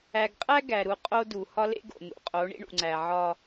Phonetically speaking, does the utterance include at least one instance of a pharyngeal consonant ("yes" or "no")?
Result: yes